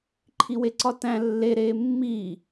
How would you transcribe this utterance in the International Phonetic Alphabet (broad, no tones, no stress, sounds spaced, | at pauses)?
ǃʰ i w e ǀ ɒ t æ̃ lː e ɾ eː mː iː